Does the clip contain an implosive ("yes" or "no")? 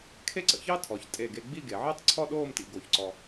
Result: yes